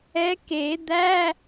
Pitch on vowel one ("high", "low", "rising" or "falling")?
rising